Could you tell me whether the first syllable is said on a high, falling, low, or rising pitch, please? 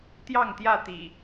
falling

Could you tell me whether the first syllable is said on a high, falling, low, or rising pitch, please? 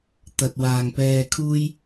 low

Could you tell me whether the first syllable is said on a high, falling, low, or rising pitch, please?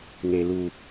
low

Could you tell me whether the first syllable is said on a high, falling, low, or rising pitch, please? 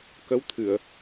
rising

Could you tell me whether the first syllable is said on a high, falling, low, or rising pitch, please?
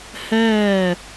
falling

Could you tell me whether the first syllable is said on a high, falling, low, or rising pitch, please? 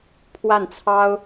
falling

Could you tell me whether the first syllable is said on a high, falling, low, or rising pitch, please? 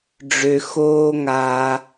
low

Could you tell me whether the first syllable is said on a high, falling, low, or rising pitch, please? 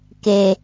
low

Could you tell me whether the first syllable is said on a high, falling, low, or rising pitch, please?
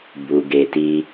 low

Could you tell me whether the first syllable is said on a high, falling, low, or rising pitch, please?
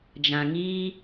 low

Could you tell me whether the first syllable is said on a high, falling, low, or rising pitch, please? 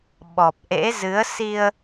low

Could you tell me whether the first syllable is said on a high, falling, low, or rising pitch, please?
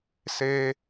high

